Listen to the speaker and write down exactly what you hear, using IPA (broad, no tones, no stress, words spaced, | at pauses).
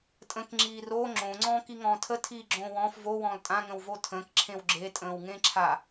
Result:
tʼə̃k ŋ͡ǁiːro ŋ͡ǁõ ŋ͡ǀɔ̃ːkiŋɔ̃ːtʰə tʰiːɡ͡ǁõːwɔ̃ːf vo wɔ̃ːltʼã ŋə̃wvotʰə̃ːk ǁʰẽwɡ͡ǁe tʼə̃ːwŋẽǁʰa